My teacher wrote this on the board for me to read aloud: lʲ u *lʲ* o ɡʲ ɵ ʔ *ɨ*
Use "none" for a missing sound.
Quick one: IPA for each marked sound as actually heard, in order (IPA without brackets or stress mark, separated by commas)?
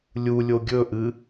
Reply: lʲ, ɨ